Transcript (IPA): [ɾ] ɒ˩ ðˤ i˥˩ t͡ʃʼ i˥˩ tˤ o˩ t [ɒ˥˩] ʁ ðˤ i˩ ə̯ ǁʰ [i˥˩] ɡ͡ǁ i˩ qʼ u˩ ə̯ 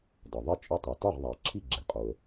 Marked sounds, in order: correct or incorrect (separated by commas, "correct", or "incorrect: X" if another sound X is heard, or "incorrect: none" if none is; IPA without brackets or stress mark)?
incorrect: d, correct, correct